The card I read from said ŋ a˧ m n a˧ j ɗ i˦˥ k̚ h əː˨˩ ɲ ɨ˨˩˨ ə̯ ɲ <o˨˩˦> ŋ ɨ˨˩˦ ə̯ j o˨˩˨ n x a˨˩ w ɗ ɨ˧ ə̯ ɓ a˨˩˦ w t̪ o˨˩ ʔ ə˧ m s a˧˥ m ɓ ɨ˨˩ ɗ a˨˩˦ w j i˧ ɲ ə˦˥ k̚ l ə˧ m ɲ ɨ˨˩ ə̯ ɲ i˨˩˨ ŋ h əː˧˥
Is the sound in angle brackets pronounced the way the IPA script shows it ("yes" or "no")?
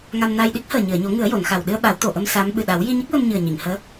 yes